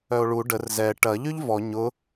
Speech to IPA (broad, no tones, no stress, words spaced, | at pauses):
œo̯ɭu ɖər zɛ ʈɐ ʎyʎvɔ ɲʊ